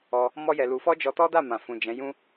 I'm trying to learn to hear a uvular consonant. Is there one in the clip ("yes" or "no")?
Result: no